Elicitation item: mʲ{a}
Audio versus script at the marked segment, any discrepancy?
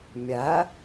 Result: yes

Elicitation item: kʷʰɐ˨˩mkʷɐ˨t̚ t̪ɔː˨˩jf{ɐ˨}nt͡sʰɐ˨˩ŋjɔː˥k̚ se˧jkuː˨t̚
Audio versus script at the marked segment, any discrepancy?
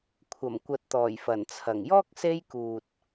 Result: yes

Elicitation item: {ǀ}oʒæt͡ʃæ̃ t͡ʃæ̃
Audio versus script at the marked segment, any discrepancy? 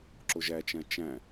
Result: yes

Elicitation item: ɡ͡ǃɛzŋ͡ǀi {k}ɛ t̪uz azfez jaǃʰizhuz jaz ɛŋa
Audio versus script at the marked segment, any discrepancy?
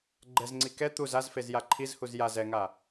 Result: no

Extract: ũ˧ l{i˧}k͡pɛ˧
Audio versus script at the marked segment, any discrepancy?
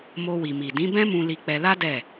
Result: no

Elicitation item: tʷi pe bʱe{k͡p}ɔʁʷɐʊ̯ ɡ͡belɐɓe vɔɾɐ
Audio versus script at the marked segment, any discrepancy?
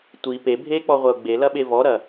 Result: no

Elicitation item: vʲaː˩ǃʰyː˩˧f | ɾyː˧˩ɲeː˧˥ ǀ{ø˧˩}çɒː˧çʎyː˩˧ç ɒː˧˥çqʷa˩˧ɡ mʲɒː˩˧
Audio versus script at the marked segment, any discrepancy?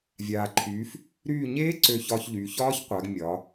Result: no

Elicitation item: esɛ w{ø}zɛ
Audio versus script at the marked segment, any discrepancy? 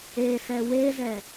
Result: yes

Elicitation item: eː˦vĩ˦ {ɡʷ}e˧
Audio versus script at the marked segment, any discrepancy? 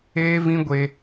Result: no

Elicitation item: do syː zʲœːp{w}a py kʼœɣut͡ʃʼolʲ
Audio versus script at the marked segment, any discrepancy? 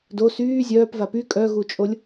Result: yes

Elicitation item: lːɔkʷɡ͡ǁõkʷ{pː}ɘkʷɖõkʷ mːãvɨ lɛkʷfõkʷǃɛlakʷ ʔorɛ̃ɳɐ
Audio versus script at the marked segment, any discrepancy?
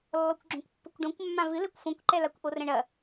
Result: no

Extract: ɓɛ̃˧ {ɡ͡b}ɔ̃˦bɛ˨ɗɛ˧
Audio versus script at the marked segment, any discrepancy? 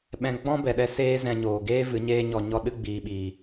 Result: no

